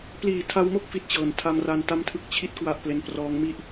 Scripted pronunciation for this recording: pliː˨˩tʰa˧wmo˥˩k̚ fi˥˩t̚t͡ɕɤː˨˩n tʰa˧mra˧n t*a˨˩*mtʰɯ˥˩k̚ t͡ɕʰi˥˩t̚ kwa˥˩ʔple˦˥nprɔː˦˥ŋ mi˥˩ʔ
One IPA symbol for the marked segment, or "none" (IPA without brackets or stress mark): a˥˩